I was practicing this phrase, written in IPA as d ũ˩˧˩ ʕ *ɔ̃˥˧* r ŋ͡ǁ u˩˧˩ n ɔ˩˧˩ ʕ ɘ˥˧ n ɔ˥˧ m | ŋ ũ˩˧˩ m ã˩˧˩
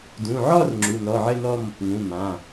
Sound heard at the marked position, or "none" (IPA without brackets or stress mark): ɔ˥˧